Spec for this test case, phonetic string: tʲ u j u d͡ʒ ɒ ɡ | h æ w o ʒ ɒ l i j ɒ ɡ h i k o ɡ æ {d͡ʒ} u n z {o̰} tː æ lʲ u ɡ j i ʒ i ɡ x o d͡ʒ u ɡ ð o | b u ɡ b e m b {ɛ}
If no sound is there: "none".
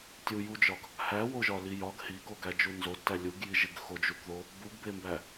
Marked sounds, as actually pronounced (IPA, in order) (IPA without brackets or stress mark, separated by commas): d͡ʒ, o, æ